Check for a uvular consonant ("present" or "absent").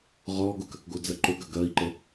present